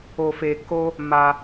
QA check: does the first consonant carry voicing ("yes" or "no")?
no